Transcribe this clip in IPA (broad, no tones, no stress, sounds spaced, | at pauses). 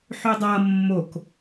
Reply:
ħ ʏ dˤ ʌ mː o k